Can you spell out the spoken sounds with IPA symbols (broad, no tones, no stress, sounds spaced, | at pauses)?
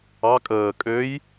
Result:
ɑ kʼ əː kʼ ø j